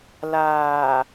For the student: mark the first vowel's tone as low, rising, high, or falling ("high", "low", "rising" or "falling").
low